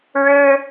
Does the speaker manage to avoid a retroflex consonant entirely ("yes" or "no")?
no